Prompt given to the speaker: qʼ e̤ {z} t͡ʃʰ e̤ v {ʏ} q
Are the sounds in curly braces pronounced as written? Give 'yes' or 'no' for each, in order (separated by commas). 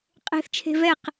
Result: no, no